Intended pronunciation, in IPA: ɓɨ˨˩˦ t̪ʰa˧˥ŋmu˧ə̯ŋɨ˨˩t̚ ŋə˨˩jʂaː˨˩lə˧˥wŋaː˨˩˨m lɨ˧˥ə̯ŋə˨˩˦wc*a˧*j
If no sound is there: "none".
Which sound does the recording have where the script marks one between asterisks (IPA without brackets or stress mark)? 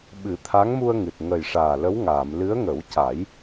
a˨˩˦